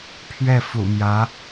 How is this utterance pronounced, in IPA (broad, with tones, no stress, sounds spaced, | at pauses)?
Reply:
pʰ ɥ ɛ˥˩ f ṵ˨˩ m j ä˧˥